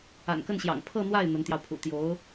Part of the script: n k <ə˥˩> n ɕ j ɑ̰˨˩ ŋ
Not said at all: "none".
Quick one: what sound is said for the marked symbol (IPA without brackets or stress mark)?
ə˥˩